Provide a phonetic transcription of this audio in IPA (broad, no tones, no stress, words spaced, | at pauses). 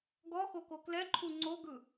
ɡɔxoko klɛǃʰu ŋ͡ǀoɡɯ